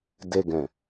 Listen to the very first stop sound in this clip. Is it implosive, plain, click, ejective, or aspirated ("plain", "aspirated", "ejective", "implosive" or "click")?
plain